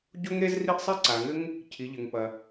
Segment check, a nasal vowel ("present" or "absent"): absent